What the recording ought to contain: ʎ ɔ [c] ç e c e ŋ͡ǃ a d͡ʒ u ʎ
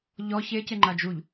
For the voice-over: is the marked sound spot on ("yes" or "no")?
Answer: no